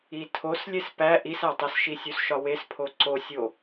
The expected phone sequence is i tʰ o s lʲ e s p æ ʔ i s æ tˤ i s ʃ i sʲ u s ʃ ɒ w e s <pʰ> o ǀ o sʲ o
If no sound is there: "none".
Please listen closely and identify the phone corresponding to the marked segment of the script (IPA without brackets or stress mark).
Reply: pʰ